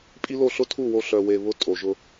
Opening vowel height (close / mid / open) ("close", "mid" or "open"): close